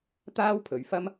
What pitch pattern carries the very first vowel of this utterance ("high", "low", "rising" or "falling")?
high